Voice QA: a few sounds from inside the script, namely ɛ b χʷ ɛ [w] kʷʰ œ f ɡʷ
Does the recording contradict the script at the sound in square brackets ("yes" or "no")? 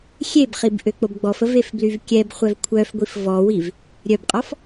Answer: yes